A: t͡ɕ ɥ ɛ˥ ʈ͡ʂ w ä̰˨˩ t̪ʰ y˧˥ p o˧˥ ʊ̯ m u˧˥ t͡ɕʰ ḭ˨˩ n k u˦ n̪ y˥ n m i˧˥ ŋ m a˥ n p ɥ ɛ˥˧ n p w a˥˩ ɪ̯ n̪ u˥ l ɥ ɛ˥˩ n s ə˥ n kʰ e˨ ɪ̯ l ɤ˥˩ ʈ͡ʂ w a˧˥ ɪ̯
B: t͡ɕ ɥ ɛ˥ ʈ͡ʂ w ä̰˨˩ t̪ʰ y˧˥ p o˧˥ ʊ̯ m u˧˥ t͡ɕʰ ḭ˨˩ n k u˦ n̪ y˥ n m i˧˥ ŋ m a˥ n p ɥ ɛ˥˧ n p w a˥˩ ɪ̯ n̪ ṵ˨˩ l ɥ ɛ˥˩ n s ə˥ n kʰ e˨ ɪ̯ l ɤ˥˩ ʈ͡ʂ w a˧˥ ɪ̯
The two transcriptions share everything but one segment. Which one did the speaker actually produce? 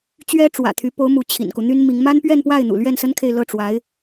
B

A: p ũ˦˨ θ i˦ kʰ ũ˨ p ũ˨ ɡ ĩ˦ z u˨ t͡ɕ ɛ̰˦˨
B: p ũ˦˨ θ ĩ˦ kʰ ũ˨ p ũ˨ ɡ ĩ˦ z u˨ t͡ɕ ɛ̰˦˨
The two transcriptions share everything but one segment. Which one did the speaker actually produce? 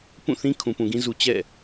B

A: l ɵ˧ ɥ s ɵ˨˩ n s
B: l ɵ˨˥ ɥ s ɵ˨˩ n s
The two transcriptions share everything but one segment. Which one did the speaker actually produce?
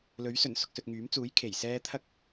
B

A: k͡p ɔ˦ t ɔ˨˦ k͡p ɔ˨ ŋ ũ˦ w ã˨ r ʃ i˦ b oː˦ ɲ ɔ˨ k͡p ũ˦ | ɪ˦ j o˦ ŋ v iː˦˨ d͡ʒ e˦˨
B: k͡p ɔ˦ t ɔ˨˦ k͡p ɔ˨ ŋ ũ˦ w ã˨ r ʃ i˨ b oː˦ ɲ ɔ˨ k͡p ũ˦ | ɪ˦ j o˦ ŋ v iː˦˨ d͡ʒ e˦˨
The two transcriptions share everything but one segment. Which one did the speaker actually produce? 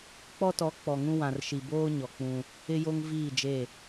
B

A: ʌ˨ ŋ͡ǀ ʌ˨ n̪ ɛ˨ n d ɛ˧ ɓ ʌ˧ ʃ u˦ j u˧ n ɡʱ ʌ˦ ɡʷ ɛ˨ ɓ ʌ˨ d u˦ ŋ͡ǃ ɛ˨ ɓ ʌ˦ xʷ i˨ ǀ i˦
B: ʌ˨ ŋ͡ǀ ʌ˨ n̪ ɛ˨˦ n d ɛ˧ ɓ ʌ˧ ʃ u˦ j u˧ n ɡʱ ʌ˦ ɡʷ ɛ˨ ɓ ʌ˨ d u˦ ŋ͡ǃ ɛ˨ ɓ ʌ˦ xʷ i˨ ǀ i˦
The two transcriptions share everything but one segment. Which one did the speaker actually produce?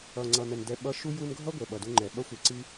A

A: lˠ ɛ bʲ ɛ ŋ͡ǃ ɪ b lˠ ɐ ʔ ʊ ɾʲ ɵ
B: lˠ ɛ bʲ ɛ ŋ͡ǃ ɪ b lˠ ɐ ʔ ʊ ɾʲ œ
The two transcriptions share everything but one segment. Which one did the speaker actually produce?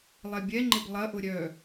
B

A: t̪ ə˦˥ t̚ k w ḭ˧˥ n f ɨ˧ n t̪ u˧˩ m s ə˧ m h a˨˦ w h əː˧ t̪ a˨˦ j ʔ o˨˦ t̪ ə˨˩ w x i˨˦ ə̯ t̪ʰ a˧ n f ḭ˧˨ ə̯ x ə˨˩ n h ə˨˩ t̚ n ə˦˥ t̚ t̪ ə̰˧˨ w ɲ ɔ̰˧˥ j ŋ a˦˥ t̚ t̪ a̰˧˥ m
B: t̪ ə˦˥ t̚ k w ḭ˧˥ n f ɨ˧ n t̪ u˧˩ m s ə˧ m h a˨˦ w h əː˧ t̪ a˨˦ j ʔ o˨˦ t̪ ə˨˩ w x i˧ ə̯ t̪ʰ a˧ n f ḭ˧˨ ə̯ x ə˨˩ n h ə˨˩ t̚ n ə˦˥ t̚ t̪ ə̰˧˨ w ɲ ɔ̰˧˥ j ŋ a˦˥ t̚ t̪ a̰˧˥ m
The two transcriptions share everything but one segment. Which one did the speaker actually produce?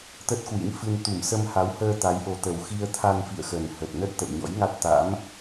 B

